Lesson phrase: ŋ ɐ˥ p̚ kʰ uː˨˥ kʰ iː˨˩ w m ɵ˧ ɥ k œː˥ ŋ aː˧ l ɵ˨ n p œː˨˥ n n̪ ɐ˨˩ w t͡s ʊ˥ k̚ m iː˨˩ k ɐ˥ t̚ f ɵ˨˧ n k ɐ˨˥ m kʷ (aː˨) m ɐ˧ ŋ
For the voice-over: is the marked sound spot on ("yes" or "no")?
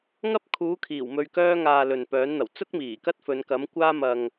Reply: no